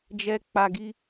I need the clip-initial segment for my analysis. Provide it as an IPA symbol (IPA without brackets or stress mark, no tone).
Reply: d͡ʒ